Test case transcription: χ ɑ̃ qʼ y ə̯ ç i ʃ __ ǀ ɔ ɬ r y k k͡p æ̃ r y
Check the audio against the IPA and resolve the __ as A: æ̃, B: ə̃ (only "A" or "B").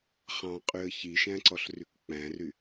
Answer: A